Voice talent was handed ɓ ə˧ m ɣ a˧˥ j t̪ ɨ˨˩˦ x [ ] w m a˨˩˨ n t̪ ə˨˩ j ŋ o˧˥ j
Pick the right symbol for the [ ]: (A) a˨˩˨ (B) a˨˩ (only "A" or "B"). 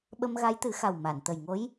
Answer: B